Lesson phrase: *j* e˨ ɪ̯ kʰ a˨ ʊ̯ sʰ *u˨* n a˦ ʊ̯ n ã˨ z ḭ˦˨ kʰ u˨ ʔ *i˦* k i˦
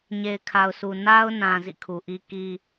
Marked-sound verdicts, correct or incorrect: incorrect: ɲ, correct, correct

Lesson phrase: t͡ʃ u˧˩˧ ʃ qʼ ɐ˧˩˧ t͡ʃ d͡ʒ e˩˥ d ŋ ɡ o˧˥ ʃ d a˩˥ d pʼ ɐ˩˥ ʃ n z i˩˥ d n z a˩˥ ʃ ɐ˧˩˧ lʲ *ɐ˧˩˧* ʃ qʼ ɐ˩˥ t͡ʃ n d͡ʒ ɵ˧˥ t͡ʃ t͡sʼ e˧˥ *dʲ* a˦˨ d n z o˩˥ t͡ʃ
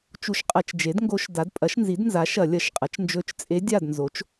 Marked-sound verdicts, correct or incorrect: correct, correct

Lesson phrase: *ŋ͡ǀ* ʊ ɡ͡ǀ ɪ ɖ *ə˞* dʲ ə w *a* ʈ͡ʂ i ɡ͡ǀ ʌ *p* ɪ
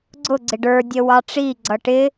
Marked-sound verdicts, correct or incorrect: incorrect: ɡ͡ǀ, correct, incorrect: ɑ, incorrect: ʈ

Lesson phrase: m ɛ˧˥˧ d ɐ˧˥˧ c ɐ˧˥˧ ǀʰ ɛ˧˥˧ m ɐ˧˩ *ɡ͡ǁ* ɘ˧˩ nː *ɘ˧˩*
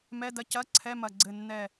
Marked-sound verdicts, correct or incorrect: incorrect: ɡ͡ǀ, incorrect: ɛ˧˩

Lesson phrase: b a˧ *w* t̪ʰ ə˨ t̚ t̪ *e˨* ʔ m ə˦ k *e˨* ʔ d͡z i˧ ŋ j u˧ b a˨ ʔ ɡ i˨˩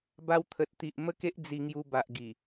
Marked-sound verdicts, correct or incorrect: correct, incorrect: i˨, incorrect: e˦

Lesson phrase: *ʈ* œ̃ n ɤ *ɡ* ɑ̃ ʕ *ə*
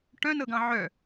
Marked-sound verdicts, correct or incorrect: correct, correct, incorrect: œ

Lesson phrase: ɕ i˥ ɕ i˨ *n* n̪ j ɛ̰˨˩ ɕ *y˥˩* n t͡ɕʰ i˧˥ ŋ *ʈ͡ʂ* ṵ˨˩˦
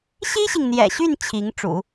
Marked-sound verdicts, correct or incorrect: incorrect: ŋ, correct, correct

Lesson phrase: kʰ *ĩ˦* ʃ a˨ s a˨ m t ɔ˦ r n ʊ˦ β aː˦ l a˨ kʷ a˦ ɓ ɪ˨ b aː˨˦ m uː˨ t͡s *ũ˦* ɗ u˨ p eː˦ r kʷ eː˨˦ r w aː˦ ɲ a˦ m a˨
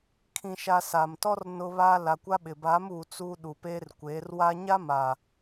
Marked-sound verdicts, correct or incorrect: incorrect: ĩ˨, incorrect: u˦

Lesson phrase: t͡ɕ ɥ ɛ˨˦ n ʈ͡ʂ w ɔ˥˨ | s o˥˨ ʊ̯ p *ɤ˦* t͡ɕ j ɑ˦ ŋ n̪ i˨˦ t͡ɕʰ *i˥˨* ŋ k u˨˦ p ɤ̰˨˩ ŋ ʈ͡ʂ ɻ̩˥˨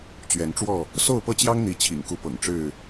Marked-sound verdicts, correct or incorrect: correct, incorrect: ḭ˨˩

